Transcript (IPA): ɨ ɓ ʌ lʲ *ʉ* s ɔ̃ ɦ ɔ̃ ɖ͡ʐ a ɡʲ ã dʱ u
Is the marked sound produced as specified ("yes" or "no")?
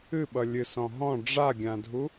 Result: no